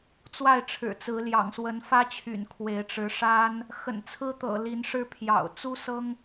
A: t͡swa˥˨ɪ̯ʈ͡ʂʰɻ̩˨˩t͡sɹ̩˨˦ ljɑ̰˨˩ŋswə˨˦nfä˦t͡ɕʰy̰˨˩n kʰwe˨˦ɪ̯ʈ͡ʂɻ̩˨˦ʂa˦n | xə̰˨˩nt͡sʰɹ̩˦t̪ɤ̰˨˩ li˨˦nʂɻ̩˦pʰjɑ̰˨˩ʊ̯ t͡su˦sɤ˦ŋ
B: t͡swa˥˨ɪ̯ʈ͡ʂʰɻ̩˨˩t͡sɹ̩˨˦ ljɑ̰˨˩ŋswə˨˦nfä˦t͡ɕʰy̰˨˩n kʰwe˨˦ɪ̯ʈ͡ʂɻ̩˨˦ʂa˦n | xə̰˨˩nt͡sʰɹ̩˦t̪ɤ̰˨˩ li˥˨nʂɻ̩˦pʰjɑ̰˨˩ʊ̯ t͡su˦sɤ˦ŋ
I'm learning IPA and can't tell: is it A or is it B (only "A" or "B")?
A